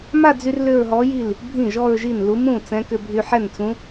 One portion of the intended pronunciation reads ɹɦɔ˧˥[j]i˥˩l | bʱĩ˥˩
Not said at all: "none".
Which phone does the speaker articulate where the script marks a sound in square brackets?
j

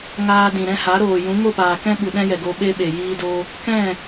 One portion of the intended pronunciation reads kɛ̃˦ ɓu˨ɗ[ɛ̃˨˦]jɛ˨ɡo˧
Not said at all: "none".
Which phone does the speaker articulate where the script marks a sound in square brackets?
ɛ̃˦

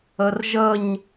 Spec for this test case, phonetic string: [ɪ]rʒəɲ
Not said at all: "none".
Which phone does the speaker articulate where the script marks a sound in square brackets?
ə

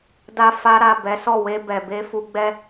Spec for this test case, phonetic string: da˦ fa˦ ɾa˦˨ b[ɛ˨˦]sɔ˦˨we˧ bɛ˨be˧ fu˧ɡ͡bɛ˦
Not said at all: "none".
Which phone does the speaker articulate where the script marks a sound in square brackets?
ɛ˨˦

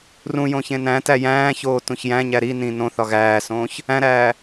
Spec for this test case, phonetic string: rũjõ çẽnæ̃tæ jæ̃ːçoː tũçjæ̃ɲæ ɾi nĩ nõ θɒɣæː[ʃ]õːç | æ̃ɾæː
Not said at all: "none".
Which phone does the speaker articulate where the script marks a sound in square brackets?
s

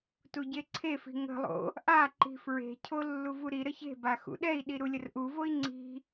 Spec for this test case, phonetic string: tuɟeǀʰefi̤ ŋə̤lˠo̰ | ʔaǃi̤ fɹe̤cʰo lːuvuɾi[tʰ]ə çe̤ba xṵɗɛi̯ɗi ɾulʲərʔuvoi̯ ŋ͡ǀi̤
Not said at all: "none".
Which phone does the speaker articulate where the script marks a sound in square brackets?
ɾ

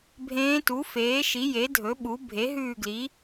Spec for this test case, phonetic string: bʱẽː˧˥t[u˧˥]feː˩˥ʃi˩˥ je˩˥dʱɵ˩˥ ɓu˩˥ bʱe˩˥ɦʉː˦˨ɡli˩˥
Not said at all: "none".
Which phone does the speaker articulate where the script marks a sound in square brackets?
u˩˥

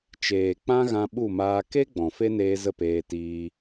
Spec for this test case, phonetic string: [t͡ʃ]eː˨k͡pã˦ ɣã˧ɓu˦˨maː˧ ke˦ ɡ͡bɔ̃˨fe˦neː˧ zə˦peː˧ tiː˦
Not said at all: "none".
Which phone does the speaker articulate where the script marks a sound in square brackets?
t͡ʃ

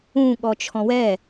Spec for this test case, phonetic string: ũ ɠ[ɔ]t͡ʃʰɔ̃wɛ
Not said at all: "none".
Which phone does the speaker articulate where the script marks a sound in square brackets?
ɔ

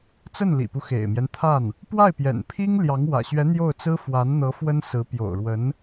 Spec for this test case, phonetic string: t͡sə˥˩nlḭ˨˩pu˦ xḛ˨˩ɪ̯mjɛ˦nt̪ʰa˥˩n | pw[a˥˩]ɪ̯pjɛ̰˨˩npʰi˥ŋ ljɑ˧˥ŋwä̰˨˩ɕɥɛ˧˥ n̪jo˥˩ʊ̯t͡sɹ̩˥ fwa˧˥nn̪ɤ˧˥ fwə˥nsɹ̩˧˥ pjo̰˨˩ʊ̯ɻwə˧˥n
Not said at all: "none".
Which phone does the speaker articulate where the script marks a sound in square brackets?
a˥˩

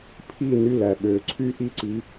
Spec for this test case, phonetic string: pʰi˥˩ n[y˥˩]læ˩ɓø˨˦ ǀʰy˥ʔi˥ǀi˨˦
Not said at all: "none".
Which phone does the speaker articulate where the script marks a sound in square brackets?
y˥˩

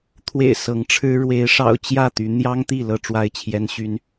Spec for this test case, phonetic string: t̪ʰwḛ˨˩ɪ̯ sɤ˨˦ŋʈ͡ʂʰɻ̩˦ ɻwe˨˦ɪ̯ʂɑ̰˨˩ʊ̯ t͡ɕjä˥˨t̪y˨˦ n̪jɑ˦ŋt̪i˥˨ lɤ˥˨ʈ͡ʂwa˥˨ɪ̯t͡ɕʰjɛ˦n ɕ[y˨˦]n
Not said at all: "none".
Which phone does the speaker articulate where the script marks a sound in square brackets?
y˦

